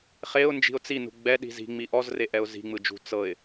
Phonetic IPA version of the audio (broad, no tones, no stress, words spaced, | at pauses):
χeʊ̯nd͡ʒi̤ʊ̯ t͡sinṳ ɡ͡bɛɗi̤ zi̤ŋ͡mi ʔɔzreʔɛʊ̯ zi̤ŋ͡mɯd͡ʒṳ t͡sɤɪ̯